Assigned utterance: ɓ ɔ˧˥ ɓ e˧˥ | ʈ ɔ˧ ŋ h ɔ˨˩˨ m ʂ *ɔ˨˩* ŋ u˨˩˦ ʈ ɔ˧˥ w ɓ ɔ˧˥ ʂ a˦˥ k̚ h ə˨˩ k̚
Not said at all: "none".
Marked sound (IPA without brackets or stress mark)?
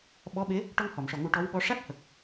ɔ˨˩